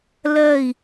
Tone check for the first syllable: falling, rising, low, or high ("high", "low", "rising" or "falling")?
falling